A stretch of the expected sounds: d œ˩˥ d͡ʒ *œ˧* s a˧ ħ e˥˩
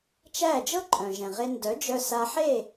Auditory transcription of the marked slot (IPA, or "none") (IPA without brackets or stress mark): œ˧